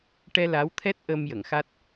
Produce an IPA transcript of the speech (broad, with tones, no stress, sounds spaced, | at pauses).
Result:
ʈ ɛ˧ l a˧˥ w t̪ʰ ɛ˦˥ t̚ ʔ əː˧ m j ə˨˩˨ ŋ x a˦˥ t̚